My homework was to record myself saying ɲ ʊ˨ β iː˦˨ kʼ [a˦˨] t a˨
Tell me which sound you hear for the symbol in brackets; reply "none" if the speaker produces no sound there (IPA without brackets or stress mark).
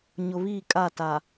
a˦˨